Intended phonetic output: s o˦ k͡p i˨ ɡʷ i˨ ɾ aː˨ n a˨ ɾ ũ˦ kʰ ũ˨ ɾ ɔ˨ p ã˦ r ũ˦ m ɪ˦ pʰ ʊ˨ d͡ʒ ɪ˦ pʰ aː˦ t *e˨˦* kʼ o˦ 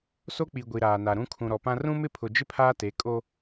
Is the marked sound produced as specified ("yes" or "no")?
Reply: yes